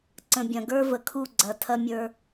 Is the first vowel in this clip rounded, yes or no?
no